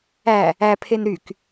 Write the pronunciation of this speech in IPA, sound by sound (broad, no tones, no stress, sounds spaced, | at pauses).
æ | æ pʰ e n ɾ y k